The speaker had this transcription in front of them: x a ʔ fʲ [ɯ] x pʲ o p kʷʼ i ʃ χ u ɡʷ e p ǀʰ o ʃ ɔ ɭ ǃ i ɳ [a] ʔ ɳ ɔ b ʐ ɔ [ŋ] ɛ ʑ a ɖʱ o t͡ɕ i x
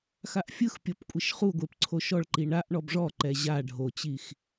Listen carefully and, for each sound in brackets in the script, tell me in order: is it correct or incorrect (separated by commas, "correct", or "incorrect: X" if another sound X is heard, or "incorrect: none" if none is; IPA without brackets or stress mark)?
correct, correct, incorrect: ǃ